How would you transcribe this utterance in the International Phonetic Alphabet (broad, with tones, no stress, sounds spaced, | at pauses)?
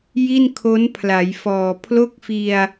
j i˥˩ n kʰ o˦˥ n pʰ l a˩˦ j f ɔː˨˩ pʰ l o˥˩ k̚ f i˧ a̯